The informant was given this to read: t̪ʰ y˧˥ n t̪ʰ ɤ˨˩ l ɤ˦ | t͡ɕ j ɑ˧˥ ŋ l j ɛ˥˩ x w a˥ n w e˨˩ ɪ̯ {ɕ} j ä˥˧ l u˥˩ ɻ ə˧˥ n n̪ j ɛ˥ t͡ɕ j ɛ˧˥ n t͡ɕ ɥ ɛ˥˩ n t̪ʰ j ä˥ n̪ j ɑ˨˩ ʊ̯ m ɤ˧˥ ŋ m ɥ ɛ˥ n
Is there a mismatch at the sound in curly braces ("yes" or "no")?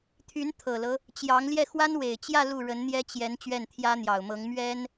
yes